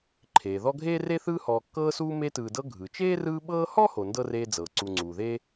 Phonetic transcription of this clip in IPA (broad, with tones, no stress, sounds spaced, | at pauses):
ǃʰ eː˩ ð ɔ˦ ɡʱ eː˥ r e˥ θ ɯː˦ h ɔː˨ kː ɤː˦ s uː˦ m e˦ t ɯː˨ d ɤ˦ ɡʱ ɯ˩ t͡ʃ eː˥ r ɯː˦ ɓ ɤː˦ h ɔ˥ h o˨ n d ɤ˥ r eː˦ d͡z ɤː˩ ǀ u˨ ŋ͡ǀ uː˩ ð e˥